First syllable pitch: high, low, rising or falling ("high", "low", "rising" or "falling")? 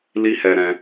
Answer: high